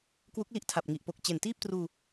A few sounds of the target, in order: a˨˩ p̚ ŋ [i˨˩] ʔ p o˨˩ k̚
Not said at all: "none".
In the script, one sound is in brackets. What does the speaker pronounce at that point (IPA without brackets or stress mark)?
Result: i˨˩